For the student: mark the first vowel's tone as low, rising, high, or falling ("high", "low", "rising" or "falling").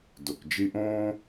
low